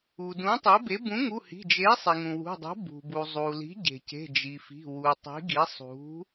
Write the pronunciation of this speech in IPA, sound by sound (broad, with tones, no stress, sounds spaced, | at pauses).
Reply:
u˩ d ũ˩˥ tˤ e˩˥ b e˩˥ b ũ˩˥ ŋ u˩˧˩ h i̤˩˧˩ d͡ʒ e˩˥ sˤ i˩ ŋ ũ˩ w ṳ˩˧˩ dˤ ṳ˩˥ b ṳ˩ b u˩ zˤ u˩ l i̤˩˥ ɟ e̤˩ c e̤˩˧˩ d͡ʒ i˩ f i̤˩˧˩ w u˩ tˤ i̤˩˥ ɡ i˩˥ sˤ ṳ˩˥